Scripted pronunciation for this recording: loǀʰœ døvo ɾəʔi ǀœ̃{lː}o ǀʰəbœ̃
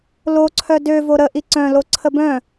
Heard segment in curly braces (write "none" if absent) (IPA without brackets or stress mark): l